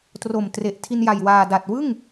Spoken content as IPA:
t r o˨˩ m t r e˨˩ ʔ tʰ i˧ n j a˨˩ j w aː˨˩ d a˨˩ t̚ w ɯ˥˩ ŋ

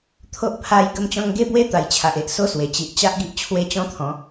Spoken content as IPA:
t̪ʰ o˦ ʔ pʰ a˧ j ɡ ə˥˧ m t͡ɕ ɔ̃˦ ŋ ɡ e˦ b w e˦ t̪ a˨˩ j t͡ɕʰ a˨ ʔ e˨ ʔ s o˦ s w e˨˩ t͡ɕ i˨ ʔ t͡ɕ a˦ ʔ ɡ i˦ ʔ t͡ɕʰ w e˦ t͡ɕ ɔ̃˦ t̪ʰ ɔ̃˨˦

